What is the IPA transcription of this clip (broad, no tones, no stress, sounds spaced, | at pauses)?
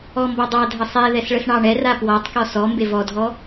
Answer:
ɔ m b ɔ dˤ ɑ dʱ ə sˤ ɛ ð ɛ s ɭ ə s ɳ ɑ ɳ ɛ r a p w ɔ tˤ k ɔ s ɔ m b e v ɔ dʱ ɔ